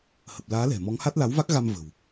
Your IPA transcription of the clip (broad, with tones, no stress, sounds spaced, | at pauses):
h ə˨˩ p̚ l aː˨˦ l ɛ̤˨˩ m ɔ˨˦ ŋ h a˦˥ t̚ l a˨˦ w v a˦˥ k̚ ɣ a˧ m v ə̤˨˩ w